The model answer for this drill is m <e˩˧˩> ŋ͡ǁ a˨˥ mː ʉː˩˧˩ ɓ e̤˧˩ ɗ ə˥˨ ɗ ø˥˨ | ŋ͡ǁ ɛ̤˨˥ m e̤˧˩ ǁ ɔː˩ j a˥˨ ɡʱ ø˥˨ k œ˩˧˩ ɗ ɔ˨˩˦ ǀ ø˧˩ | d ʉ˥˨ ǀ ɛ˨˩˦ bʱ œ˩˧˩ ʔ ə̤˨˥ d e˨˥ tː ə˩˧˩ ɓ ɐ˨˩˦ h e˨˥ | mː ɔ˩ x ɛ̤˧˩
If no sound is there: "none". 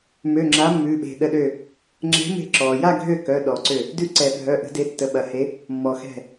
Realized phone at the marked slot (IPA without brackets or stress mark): ø˩˧˩